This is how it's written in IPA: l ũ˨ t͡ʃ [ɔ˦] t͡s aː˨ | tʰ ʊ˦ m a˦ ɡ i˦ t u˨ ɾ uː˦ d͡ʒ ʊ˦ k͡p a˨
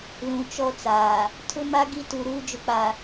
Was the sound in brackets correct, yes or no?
yes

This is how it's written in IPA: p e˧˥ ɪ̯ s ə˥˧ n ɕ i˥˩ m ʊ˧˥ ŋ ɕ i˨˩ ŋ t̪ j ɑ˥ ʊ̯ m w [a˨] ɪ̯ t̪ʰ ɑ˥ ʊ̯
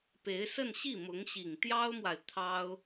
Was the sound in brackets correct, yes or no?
yes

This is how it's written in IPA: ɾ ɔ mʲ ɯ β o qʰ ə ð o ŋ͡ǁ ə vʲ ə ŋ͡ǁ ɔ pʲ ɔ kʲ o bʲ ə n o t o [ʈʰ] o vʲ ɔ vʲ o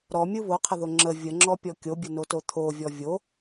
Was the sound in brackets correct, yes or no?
no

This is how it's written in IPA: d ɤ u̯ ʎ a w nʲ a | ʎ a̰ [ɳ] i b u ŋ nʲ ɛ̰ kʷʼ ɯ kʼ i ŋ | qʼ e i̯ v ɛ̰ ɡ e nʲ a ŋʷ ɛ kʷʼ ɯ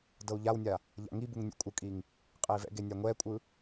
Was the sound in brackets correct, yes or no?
no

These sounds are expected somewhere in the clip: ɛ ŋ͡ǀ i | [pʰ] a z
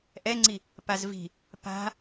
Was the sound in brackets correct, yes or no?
no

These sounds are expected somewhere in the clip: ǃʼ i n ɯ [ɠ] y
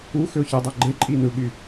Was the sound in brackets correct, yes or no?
yes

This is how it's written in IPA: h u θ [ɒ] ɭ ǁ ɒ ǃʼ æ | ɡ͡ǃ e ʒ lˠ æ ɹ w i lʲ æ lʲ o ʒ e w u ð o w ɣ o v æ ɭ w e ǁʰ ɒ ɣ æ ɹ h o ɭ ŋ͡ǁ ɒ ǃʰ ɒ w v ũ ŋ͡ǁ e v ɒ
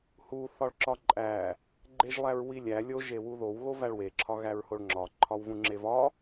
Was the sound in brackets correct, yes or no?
yes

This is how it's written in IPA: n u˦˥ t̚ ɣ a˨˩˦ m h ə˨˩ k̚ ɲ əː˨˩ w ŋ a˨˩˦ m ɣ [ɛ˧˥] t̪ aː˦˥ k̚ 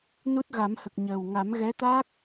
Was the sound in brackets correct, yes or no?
yes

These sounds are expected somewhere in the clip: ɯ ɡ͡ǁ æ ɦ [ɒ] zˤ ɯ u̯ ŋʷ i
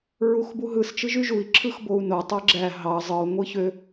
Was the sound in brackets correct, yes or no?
no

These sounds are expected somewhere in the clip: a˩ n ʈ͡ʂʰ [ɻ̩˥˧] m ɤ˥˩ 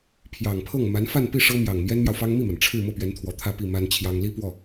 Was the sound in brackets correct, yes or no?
yes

